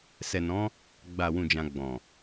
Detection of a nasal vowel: present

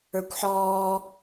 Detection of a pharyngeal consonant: present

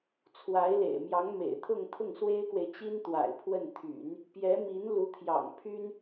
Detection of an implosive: absent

